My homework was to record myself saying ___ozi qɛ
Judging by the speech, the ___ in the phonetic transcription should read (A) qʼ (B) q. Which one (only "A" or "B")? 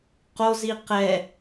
B